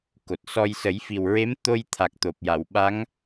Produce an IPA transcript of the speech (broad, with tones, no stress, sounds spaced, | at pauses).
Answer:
k o˨˩ t̚ s ɔ˧ j s ə˨˩˦ j f i˨˩ w ɹ e˧˥ m t̪ o˧ j t̪ʰ a˨˩ k̚ t̪ o˨˩ p̚ j a˨˩˨ w ɓ a˧˥ ŋ